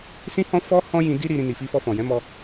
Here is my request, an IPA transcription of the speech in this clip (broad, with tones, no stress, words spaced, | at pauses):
sĩ˦hɔ̃˦fɔ˦ hɔ̃˦jĩ˧di˦ ɾi˧ɾĩ˧ ni˨fi˧fɔ˧fɔ̃˨ jɛ̃˨˦mɔ˧